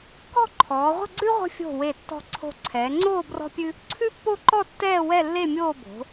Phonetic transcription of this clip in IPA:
kɔ̤˥˧ǃʰɔː˩˧ʁʷə̤˥˧ɡ͡ǀʉ˥ ʁʷə̤˥˧ fʲo̤˧˩ we˧˩tːɔ̤˧ ǀʰo̤˧˩ǀʰɛː˩˧ŋ͡ǀoː˥˧ brɔ̤˥pʲʉ˥ | ǀʰʉ˥pːo˥˧ǃɔ˥˧tːɛː˥˧ wɛ˥˧lːe˥˧mʲoː˥˧ bo̤˩˧

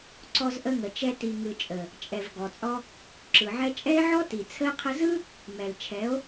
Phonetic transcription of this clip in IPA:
ǀɔ˧zʔə˧ŋə˨t͡ʃɛ˧ ti˨ŋɯ˨t͡ʃʼə˨ | t͡ʃʼɛ˨v ɡɔ˨t͡sʼɔ˧ | ǁɯ˨ʕɛ˦ t͡ʃʼɛ˦e̯ʕɔ˦ti˨ t͡sʰə˧e̯qʰə˧zɯ˦ | mɛ˨lt͡ʃʰɛ˨˦o̯

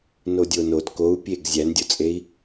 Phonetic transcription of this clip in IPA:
nodʲonod kou̯pʲeɡ zʲændʲot͡sʼei̯

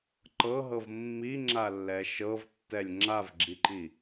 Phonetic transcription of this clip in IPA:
ǃɤɦɤv mːiŋ͡ǁalːɛ ʃɤvtːɛlʲ ŋ͡ǁavɡ͡ǁiǃi

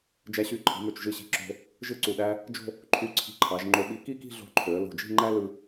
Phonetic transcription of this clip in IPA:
d͡ʒæ˧ɕy˧˩ǃʰi̤˩˧mø˧˩t͡ʃ ʒɯ˧˩ɕi̤˧˩ǁo̤˧ | ʒɯ˥ǀu˧˩ɗæ˥ | d͡ʒo̤˥˧ | ǃʰy˧˩ǀʰi̤˧ǃʰɑ˩˧ʒ ŋ͡ǃo˧ɓi˧ ki˥˧ki̤˥˧ɮo̤˧ ǃʰø˩˧ə̯ lo̤˧˩d͡ʒi̤˥˧ŋ͡ǃæ˥ lɯ˥

